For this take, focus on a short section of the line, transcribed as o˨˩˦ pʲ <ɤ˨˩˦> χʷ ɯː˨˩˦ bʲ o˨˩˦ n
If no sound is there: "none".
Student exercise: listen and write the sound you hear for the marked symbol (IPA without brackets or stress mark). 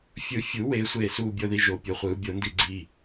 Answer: ɤ˨˩˦